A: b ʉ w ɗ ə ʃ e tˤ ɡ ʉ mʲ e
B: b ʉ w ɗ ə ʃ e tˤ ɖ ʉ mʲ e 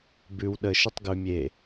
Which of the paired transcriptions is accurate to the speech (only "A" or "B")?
A